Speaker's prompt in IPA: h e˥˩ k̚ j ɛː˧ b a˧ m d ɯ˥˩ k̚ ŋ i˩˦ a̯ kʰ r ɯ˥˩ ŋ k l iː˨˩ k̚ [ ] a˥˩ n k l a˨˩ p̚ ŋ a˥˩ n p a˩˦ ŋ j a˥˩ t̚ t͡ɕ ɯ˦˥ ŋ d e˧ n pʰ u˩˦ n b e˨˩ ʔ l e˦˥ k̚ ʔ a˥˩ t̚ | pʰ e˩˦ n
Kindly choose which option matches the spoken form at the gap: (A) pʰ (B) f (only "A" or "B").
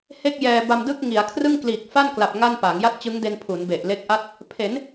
B